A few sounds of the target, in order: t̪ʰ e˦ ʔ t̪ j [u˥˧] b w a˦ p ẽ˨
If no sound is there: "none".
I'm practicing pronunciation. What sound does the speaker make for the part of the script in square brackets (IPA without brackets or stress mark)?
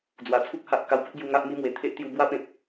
u˧